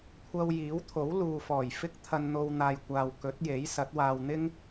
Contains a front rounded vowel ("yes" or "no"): no